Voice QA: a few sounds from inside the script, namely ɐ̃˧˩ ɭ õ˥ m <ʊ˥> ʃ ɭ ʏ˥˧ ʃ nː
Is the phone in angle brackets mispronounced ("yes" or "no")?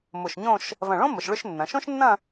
yes